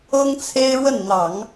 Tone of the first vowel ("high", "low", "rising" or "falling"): high